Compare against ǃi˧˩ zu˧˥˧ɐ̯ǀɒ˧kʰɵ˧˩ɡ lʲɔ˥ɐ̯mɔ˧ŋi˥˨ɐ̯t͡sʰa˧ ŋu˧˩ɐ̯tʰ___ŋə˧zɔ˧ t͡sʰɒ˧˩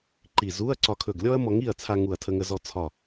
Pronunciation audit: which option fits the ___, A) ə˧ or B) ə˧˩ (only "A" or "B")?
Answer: A